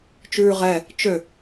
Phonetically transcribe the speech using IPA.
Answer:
t͡ʃʉːʁɛ | t͡ʃø

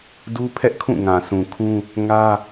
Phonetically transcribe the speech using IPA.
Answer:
du˦pʰɛ˦ʔkʰũ˦˨ ŋã˨sũ˨kʰũ˦ | ŋä˦

